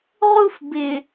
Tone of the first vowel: high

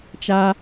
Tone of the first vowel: high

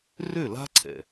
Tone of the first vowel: falling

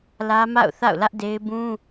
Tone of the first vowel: high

